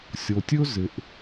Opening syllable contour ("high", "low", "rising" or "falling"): low